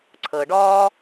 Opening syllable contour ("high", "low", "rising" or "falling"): low